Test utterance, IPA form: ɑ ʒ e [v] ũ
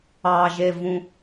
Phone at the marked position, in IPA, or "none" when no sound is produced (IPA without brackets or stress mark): v